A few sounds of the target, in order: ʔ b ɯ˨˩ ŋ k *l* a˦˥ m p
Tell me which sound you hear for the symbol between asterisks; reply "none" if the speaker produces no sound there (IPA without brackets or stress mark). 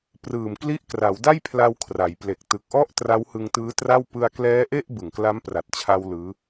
l